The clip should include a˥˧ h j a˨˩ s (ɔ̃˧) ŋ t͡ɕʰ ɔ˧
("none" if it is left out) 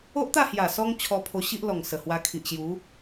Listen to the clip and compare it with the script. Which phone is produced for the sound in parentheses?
ɔ˧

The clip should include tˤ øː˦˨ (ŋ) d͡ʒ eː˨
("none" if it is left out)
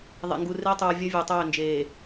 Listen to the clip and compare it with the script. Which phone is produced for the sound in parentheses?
n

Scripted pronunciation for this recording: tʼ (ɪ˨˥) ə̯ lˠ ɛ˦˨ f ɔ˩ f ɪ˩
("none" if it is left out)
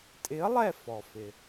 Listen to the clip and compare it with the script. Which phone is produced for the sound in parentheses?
ɪ˨˥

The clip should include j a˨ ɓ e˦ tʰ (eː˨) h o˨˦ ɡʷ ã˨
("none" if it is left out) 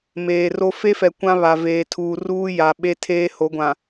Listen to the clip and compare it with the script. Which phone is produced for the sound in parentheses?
eː˦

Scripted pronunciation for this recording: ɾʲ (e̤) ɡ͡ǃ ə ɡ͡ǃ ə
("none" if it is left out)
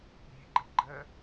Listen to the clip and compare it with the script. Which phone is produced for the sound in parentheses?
e̤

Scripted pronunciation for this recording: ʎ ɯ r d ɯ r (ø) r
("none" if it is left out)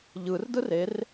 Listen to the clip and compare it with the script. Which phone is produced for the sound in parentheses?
e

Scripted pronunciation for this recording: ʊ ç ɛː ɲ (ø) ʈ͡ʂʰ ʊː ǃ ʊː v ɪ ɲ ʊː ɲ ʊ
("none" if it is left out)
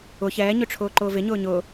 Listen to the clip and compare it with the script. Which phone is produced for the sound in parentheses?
ø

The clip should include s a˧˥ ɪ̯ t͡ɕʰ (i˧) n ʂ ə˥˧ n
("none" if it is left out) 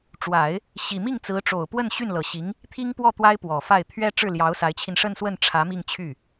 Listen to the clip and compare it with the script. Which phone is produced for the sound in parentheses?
i˧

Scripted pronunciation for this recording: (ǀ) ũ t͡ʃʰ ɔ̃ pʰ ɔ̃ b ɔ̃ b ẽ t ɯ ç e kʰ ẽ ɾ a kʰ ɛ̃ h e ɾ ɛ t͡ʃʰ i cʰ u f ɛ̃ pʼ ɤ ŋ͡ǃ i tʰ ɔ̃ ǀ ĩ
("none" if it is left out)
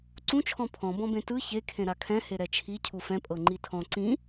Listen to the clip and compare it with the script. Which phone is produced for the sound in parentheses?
ǀ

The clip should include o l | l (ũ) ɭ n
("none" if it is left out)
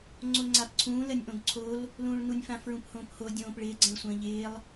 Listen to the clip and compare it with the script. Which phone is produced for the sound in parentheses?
ũː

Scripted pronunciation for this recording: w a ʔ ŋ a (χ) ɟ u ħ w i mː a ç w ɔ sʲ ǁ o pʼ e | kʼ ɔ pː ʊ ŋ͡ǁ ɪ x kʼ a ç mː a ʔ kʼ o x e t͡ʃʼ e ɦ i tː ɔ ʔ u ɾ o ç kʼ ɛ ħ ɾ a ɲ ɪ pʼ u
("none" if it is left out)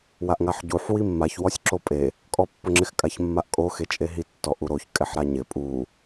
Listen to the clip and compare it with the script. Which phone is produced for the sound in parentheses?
ħ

